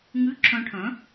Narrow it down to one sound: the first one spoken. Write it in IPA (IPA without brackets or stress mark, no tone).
ŋ